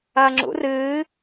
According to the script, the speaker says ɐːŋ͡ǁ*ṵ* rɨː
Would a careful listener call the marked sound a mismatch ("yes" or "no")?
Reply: no